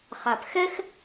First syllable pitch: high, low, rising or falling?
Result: low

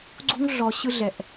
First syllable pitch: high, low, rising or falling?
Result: high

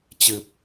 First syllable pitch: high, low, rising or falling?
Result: low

